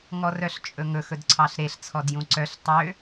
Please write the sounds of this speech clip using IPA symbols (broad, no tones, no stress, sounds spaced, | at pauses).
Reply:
ŋ ɔ r œ ɬ t͡ʃʼ ɵ ŋ ɵ x ɵ d ǀʰ ɑ ɬ ɾ e ɬ t͡sʰ ɔ d j ũ ǀ œ ɬ tˤ ø